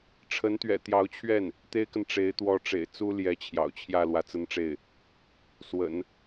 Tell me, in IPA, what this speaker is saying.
ʈ͡ʂʰ ə˧˥ n t̪ ɥ ɛ̰˨˩ t̪ j ɑ˧˥ ʊ̯ t͡ɕʰ ɥ ɛ˥˩ n | t̪ e˥ ɪ̯ k ə˨ n ʈ͡ʂ e˧˥ ɪ̯ t̪ w ɔ˧˥ ʈ͡ʂ ḛ˨˩ ɪ̯ t͡s u˥ l j ɛ˧˥ t͡ɕʰ j ɑ̰˨˩ ʊ̯ t͡ɕʰ j ä˥˩ l w ä˧˥ t͡s ə˥ n ʈ͡ʂ e˥˩ ɪ̯ | s w ə̰˨˩˦ n

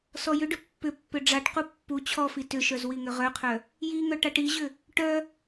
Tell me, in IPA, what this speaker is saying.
s ɔ j ʏ ɖ ʏ pː ʏ pː ʏ ɖ͡ʐ a ʈ q u pː u t͡ɕʰ ɔ f i t ʏ ʃ œ z w i ŋ ʏ ʁ œ qʰ œ | j i ŋ œ ʈ a ʈ i ʑ ʏ | ʈ œ

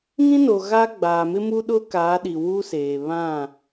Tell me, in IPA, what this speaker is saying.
ŋ ĩ˦ n o˨ ɣ a˦ ɡ͡b aː˨ m ɪ˦ m u˦ ɗ ʊ˦ k aː˨˦ ɗ i˨ w uː˦ s eː˨ β ã˦˨

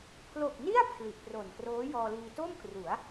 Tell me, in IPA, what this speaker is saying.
pʰ l o˨˩ k̚ n i˥˩ a̯ pʰ l i˨˩ ʔ p r o˨˩ n k r oː˦˥ j ɔː˧ l iː˧ t o˥˩ m k r u˩˦ a̯

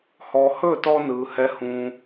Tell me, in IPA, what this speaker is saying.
h ɔ˩ h ɵː˥˩ t ɔ˧ n ɯː˩ h ɛ˩˥ h ũː˩

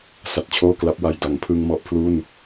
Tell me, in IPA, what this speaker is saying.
s a˨˩ t̚ t͡ɕʰ oː˥˩ k l a˦˥ p̚ w a˨˩ j d a˩˦ ŋ pʰ ɯ˧ ŋ m ɔ˦˥ ʔ pʰ l u˥˩ n

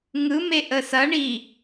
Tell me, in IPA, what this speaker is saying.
ŋ ɯ m e ʔ ə s ɐ ɳ i

